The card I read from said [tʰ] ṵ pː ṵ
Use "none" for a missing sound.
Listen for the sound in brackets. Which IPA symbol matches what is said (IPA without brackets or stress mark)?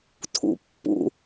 tʰ